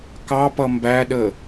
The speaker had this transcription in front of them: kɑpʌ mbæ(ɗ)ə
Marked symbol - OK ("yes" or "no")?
yes